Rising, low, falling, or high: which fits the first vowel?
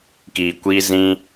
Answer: low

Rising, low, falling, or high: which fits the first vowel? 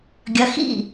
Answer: rising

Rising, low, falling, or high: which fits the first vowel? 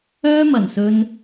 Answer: high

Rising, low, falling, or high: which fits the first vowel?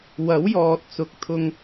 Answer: rising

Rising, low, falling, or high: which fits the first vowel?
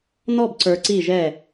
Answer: falling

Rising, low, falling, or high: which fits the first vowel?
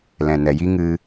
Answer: low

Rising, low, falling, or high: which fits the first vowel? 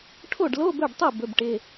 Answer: falling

